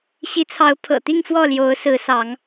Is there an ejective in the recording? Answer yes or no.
no